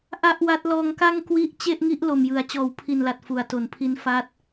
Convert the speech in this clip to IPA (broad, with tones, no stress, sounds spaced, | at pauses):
ʔ a˥˩ ʔ w a˦˥ t̚ l ɔː˧ ŋ k a˥˩ ŋ k w i˦˥ ʔ t͡ɕ e˥˩ ʔ ŋ i˦˥ ʔ l o˨˩ m j ɯ˩˦ a̯ t͡ɕ ɔː˨˩ w pʰ i˨˩ n l a˨˩ t̚ f u˩˦ a̯ t o˩˦ n pʰ i˦˥ n f a˦˥ t̚